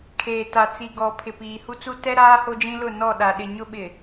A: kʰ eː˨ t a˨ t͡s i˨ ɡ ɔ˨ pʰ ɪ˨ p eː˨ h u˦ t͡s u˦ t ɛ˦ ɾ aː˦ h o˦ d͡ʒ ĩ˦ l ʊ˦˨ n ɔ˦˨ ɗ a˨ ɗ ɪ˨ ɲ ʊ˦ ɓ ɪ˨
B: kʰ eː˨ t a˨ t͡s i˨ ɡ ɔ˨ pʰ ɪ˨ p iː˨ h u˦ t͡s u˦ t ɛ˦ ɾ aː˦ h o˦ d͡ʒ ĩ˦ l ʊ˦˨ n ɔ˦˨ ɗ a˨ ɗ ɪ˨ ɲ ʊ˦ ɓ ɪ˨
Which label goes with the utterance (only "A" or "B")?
B